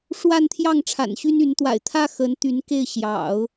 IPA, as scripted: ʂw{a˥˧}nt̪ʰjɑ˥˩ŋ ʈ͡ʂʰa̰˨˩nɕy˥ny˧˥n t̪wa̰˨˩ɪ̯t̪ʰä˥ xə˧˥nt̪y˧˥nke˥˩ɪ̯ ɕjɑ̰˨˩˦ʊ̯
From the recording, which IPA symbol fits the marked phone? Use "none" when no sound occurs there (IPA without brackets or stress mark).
a˥˧